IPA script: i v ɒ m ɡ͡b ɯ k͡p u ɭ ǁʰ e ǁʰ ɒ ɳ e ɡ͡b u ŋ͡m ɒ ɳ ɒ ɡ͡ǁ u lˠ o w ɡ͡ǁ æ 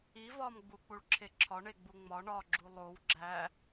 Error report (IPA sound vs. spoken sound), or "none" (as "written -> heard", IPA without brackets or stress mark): ɯ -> u